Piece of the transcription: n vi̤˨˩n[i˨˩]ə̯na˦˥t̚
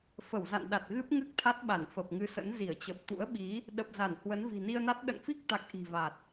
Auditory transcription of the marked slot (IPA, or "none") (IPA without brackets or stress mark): i˧